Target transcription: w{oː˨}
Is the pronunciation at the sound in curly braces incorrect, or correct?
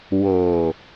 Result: correct